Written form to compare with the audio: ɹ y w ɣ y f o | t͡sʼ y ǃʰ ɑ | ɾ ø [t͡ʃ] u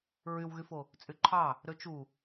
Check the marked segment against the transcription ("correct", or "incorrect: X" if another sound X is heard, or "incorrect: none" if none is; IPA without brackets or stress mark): correct